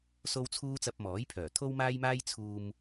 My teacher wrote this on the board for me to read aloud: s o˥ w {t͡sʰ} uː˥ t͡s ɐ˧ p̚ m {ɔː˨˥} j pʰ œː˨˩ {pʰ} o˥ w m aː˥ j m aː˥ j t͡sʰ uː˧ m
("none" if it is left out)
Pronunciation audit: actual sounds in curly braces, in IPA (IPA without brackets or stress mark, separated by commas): t͡sʰ, ɔː˨˥, t̪ʰ